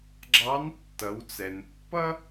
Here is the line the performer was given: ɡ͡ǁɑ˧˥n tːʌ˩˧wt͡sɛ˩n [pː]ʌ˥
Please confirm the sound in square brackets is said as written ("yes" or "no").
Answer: yes